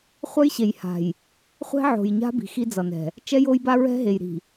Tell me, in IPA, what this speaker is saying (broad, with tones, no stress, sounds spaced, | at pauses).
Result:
χʷ ʌ˦ j ɕ e˨ j h a̤˨ j | χʷ ɛ̤˦ ʕ o̤˨ j ɲ a̤˦ b i̤˨ x i˦ d͡z ʌ˨ n ɛ̤˨ | t͡ʃ ɛ˦ j o˦ j b a˦ ɹ ɛ̤˦ ɦ e˨ j ɾ i̤˨